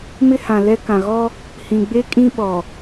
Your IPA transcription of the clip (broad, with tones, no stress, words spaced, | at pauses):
mɪ˦hã˨lɛ˦ kã˨ɣɔ˦ | hĩ˨ ɡ͡be˦kʼĩ˦ ɓɔ˨